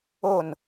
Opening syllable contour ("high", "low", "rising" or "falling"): falling